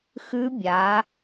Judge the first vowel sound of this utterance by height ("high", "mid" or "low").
high